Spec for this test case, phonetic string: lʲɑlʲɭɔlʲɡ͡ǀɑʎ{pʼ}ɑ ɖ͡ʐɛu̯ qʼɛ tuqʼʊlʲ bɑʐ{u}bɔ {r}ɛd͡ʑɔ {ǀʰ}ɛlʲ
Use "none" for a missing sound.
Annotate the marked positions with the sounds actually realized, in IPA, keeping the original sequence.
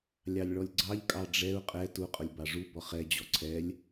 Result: kʼ, u, χ, ǀʰ

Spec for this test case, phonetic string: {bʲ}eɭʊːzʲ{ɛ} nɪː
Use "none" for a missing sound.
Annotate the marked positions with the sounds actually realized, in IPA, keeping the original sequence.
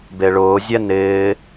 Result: b, ɛ

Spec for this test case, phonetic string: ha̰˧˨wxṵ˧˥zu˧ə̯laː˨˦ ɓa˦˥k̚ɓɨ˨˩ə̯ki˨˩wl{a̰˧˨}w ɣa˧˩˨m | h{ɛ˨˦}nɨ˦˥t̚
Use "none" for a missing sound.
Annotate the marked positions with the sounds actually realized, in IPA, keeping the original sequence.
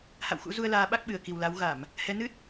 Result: a˨˦, ɛ˨˦

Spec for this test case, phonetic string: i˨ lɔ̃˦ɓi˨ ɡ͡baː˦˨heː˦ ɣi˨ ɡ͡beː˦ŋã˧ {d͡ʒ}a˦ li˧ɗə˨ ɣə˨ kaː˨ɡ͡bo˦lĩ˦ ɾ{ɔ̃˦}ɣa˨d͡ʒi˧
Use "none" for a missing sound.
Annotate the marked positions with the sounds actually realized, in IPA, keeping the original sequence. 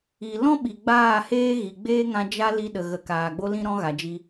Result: d͡ʒ, ɔ̃˦

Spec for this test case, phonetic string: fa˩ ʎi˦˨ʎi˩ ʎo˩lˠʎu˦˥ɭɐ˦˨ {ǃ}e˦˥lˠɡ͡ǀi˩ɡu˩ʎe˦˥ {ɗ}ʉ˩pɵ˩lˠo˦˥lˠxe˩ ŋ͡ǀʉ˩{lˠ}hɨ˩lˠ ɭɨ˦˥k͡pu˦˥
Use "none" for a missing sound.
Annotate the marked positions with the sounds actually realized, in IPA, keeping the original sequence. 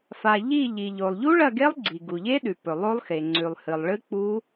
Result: ɡ, ɗ, lˠ

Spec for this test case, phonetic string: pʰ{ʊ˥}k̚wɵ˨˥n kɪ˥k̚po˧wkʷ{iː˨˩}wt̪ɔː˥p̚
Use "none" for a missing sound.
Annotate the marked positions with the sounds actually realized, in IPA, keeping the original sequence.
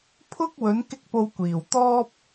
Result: ʊ˥, iː˨˩

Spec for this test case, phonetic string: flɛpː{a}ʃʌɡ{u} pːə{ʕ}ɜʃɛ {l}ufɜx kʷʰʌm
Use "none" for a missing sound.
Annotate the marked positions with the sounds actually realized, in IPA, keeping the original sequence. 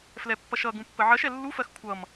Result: ʌ, ũ, ʕ, lː

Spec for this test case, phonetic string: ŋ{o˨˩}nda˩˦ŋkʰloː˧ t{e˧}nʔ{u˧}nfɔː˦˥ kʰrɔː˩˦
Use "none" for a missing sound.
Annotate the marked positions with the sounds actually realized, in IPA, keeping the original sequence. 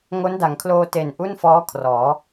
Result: o˦˥, e˨˩, u˥˩

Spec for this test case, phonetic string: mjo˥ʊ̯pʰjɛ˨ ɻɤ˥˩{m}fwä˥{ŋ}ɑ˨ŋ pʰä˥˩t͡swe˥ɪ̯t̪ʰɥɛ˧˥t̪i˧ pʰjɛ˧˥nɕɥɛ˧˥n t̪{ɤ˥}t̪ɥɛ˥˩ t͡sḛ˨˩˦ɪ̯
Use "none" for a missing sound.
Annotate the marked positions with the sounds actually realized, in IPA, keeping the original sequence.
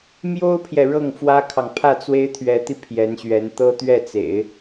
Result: ŋ, kʰ, ɤ˥

